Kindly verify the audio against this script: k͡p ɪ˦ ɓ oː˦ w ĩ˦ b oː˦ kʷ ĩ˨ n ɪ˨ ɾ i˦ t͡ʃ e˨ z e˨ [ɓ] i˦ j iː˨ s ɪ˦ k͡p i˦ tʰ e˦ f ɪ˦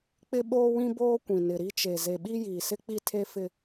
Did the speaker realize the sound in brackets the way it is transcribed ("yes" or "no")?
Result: yes